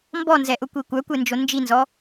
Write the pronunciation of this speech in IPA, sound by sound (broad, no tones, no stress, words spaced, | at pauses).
mbɔnzɛʔʊkʷi kʷœkʷend͡ʒo nd͡ʒinzɔ